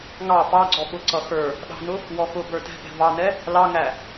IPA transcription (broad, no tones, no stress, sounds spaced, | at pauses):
ŋ ɑ p ɑ ɡ͡ǀ ɔ ɓ ʊ ǀ ʌ x ə˞ | ɗ ɑ̤ n ʊ | w ɔ x ʊ b ə˞ t ɛ̤ p ɛ̤ v ɑ n ɛ | l ɑ ŋ æ